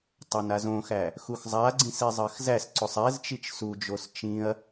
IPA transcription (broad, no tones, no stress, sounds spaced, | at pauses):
tˤ a n a z õ x æ | x u x zˤ a ɡ͡ǀ ĩ s i zˤ ɜ x z æ s ǀ o sˤ ɛ z t͡ʃ i t͡ʃ s u d͡ʒ o s t͡ʃ ĩ ɐ̯